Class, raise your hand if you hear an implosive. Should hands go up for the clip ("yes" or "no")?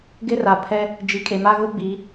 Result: no